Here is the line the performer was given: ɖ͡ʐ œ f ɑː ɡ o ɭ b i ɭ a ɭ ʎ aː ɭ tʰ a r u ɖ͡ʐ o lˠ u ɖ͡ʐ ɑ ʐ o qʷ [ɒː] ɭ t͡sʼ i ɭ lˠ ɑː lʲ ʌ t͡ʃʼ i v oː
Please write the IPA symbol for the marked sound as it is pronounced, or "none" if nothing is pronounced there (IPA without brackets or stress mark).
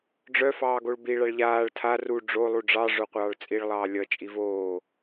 ɑː